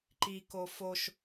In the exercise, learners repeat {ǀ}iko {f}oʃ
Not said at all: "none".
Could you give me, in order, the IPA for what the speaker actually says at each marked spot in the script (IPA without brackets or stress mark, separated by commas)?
ǃ, f